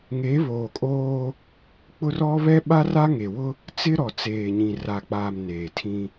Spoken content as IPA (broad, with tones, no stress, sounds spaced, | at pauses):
ŋ e˨˦ β oː˨ kʼ oː˦ | k͡p ʊ˦ r ɔ˦ β ɛ˦ ɓ a˦ r a˦ ŋ e˨ w ʊ˦ | t͡s ɪ˦ ɾ ɔ˨ t͡s eː˨ ɲ ĩ˨ r a˨ k͡p aː˨ m n eː˨ tʰ ĩ˦